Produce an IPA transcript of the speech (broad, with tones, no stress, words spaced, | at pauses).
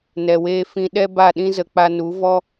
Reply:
nɛ˨weː˧ fĩ˧ɗɛ˦ ba˦˨ɗĩ˦zə˧k͡pa˧ nu˨˦vɔ˦